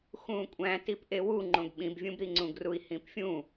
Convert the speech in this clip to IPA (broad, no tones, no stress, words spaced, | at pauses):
xũːkʷʼæ̃ tipʔewu ŋ͡ǃõɡɓĩbvʲũbɾi ŋ͡ǀũɡrui̯hĩpfʲũ